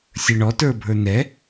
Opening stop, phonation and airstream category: plain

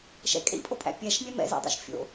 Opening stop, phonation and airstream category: ejective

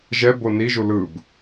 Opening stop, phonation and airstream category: plain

